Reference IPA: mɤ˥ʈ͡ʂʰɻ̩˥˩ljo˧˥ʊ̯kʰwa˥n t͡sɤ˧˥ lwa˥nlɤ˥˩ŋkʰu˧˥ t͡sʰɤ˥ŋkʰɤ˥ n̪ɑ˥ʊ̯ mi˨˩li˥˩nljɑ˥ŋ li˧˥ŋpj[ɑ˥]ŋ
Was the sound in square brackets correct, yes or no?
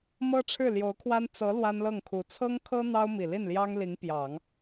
no